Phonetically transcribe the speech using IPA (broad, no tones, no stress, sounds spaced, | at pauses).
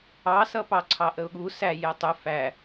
ɑ s ʌ p ɑ ǀʰ ɑ ʔ ə ʊ̯ ɠ u s æ j ɛ tˤ ʊ f æ